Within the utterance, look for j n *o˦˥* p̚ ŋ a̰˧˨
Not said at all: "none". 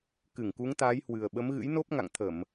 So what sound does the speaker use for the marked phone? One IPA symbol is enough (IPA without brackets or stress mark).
o˦˥